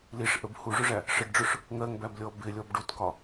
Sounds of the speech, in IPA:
liʂ ʔəb huʐʊʐæ | ʂəɖɖ͡ʐʊʂ | ŋɜŋbæblʲɔ bɪlʲɔb ɖutkɒ

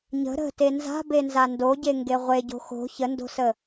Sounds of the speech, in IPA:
ɲə̤ ɾə̤te nza̤benza ndoɟeŋɡe ʁʷeɟo̤ xo̤ çəndo̤sə

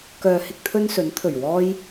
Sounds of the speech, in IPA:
kœː˨ hɪ˥k̚t̪ʰɵ˥nsɵ˨˥n t̪ʰɵ˨˩ɥwɔː˧j

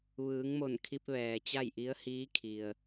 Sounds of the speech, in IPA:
ʋɯː˩˧ŋmo˧˩n kʰi˧p̚ʋɛː˩t͡ɕa˥˨jʔi˧˥ə̯ hiː˧˥kʰi˩ə̯

